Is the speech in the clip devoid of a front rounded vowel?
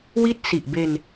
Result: yes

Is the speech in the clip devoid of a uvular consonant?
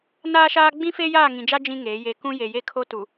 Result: yes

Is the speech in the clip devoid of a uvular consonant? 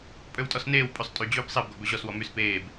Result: yes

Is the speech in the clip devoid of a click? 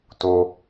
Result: yes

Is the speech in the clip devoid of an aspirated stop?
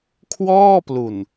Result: no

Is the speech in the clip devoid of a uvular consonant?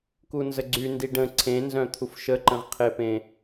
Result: no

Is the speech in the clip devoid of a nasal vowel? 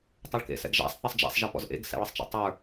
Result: yes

